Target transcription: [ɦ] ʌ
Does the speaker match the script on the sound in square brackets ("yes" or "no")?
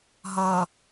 yes